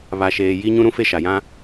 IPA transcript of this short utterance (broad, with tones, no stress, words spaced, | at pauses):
βa˨ʃeː˨ ji˦ɲũ˦ɾũ˦fe˦ ʃa˨jã˦